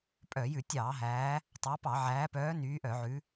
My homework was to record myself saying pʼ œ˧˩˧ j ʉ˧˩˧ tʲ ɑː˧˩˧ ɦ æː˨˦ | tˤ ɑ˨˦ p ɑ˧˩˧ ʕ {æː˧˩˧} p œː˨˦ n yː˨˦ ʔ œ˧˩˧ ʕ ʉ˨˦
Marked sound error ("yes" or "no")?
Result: yes